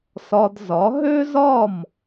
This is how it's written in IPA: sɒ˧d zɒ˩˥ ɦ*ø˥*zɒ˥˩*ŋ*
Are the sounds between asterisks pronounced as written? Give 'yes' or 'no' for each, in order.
yes, no

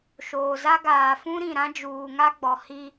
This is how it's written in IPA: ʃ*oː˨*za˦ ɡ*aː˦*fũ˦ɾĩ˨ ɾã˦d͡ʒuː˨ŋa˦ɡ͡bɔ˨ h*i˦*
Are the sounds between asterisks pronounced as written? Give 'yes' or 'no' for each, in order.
yes, no, yes

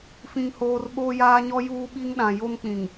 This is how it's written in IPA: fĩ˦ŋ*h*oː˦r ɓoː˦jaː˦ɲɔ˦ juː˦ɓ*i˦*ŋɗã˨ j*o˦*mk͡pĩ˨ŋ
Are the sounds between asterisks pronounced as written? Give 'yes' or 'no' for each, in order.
yes, yes, yes

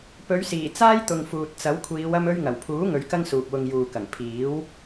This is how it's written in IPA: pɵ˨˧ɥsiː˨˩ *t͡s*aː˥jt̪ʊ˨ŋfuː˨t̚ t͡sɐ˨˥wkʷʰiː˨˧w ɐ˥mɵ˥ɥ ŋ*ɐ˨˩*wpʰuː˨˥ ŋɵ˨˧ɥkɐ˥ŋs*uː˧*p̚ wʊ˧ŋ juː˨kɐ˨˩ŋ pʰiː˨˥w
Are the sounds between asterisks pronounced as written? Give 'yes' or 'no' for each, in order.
yes, yes, no

